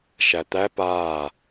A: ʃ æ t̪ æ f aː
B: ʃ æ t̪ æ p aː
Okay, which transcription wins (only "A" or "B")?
B